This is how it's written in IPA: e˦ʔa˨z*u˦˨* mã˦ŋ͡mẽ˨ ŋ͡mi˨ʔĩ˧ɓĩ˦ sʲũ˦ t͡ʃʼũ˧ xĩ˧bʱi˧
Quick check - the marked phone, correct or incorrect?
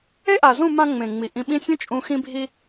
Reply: incorrect